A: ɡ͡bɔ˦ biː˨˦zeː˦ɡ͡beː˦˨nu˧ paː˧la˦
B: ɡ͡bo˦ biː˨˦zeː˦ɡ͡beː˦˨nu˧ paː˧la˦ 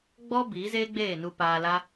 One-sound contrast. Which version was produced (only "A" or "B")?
A